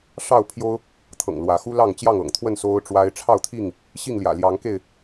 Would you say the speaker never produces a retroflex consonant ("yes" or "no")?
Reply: no